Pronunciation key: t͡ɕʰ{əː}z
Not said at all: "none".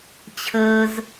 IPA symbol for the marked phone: əː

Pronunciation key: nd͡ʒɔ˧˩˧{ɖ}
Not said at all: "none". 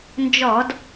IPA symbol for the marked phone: d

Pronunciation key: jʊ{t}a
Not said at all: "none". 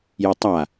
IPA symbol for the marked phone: tˤ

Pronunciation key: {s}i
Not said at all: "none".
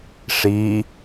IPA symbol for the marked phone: ʂ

